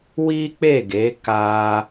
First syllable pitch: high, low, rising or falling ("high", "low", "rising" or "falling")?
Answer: high